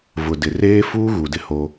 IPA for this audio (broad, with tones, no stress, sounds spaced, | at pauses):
v ʊ˨ d ɪ˨ r eː˦ f uː˦ ɣ u˨ d ɪ˦ h o˦